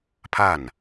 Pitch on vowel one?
falling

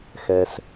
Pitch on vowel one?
low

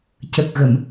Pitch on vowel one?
low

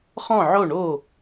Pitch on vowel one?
falling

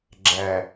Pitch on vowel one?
low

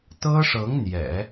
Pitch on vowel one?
high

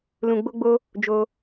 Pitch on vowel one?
low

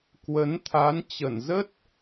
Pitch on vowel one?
rising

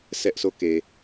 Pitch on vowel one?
high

